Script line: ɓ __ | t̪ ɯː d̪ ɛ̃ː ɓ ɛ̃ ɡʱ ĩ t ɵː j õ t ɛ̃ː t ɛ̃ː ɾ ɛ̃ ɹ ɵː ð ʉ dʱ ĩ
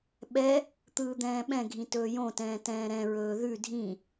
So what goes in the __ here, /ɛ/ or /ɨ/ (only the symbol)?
ɛ